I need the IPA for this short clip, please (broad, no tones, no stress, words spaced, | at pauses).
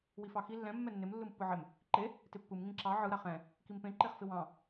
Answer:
wifɑxi lːɛ̃ mːɛnːɪm lːɯmpːɯʕɪm | ǃe | tɪpːɯm ŋĩǁɑ ʕɯ ɾaχɛ̃ | kimpẽ ǃeχfɪwɑ̃